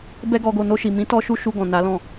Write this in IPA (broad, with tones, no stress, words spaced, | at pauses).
bɛ˦ɡɔ˧ɡo˧ no˧ʃi˨ mĩ˨˦tɔ˧ ʃu˦ʃu˧ ɡɔ̃˨na˨˦lɔ̃˦˨